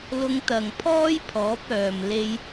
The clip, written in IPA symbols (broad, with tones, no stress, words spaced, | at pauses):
lʊ˧ŋt̪ɐ˨ŋ pʰɔː˥jpʰɔː˨˥p̚œː˨m le˧j